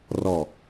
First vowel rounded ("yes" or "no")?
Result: yes